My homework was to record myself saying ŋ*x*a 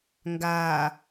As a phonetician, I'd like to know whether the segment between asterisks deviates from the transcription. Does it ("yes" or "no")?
yes